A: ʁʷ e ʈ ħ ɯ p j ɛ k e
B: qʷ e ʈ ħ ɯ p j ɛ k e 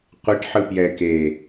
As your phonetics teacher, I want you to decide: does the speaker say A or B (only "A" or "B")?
B